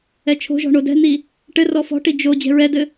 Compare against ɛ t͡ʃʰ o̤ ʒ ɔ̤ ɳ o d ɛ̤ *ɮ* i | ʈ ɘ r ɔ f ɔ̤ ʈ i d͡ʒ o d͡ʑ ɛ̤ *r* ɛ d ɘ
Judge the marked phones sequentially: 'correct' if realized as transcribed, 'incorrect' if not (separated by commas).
incorrect, incorrect